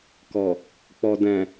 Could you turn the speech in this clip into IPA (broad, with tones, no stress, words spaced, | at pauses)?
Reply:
kɔ˨ | k͡pɔ˨dɛ̃˨